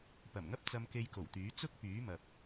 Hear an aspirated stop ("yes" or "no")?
no